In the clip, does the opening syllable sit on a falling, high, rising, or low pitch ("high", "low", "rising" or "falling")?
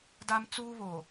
high